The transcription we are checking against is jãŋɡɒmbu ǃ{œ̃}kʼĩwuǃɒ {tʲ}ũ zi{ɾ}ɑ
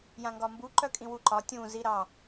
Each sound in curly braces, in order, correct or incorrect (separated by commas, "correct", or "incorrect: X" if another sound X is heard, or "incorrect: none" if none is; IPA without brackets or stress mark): incorrect: œ, correct, correct